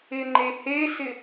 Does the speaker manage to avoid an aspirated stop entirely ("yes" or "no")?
yes